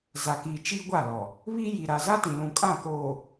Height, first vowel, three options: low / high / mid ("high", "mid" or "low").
low